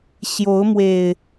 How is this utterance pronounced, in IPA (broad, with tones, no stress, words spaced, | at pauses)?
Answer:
ɕjo˨˦ʊ̯mwe˨˩ɪ̯